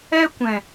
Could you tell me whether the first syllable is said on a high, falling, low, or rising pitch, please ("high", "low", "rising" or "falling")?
high